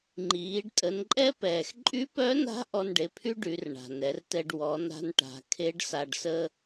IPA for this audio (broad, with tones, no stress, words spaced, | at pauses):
ŋ͡ǃiː˩˧ɖ tʼə˩˧nǃʼɛ˥pɛː˩x ǃʼy˧˥pœ˧˥na̤˧˥ ʔɔ˧nɖe˩˧pʰy˥ ɖy˩˧rɳa̤˩nɛ˩˧rtɛ˧ɖ wɔ˩˧na̤˧nʈa̤˩˧ kʰe˧˥ɖsa˧ɖsə˥